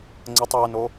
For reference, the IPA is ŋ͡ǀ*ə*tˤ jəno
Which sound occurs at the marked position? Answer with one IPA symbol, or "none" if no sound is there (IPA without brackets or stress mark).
ə